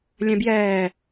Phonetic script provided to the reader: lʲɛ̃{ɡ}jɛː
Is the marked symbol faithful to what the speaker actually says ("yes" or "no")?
no